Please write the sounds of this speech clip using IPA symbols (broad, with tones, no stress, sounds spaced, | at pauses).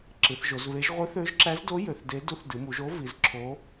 ǁ ɨ˩˧ θ ʒ o˩˧ z β e˧˥ ʒ ʁʷ ɨ˧˥ θ ø˧˥ ʒ ǁ æ˧˥ z d o˧˥ j ø˩˧ θ d e˧˥ d u˧˥ θ d ɨ˩˧ m u˩˧ ʒ o˧˥ v i˩˧ z ǁʰ o˧˥